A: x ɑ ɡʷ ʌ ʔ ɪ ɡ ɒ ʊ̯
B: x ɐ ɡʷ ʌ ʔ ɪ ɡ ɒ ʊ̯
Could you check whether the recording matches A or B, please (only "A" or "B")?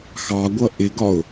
A